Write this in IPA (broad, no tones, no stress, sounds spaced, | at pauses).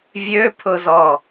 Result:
vʲ ø pʰ ʊ z ɔ